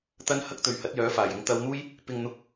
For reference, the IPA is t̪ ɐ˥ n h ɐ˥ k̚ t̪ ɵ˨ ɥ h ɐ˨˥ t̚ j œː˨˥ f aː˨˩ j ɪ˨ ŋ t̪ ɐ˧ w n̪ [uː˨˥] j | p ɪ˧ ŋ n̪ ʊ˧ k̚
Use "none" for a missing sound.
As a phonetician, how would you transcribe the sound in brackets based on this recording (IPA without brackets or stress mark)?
uː˥